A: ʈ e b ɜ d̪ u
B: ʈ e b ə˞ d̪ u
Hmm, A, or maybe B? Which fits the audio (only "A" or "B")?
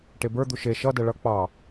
B